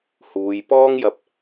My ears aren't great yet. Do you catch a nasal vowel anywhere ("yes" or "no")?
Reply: no